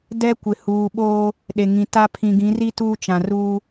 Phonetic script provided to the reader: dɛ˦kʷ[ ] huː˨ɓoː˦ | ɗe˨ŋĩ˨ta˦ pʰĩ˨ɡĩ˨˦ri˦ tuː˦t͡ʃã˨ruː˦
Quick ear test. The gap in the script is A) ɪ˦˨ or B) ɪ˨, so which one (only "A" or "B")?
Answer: B